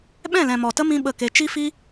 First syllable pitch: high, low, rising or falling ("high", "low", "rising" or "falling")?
falling